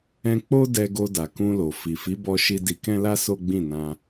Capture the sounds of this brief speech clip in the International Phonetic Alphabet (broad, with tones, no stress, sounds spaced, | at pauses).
ɛ̃˧ k͡p o˦ d ɛ˧ ɡ o˧ d a˨ k ũ˧ l o˨ f i˨ f i˨˦ b ɔ˧ ʃ i˧ d i˧ k ɛ̃˦ l a˦ s o˦ ɡ͡b ĩ˦˨ n ã˧